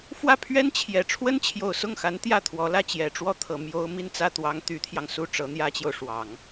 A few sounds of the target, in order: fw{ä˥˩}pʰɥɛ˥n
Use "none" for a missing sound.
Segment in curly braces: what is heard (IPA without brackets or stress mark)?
ä˥˩